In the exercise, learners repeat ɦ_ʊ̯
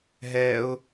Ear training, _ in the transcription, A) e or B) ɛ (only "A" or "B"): B